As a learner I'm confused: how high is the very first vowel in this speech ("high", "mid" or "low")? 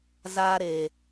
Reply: low